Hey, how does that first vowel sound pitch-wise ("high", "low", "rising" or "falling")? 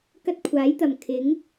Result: high